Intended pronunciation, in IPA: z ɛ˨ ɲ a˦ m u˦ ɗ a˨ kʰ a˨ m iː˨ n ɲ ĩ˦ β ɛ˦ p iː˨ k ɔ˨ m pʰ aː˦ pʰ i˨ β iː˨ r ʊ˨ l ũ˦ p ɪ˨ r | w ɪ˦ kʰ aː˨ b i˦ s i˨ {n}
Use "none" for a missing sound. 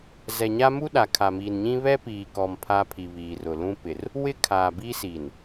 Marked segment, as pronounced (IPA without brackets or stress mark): n